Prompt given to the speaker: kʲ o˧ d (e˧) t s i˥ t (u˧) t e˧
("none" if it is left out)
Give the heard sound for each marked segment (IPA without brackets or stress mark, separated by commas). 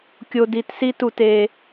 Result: i˧, u˧